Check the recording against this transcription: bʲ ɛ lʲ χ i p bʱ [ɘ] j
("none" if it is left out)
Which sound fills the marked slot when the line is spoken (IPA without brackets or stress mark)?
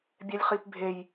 e